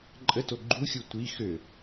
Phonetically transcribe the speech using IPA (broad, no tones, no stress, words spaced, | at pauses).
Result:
ǃʼəto ɡ͡ǃuxʲu tʷi xø